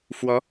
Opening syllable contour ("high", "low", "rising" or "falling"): rising